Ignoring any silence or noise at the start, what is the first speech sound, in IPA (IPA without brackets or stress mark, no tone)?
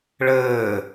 ɭ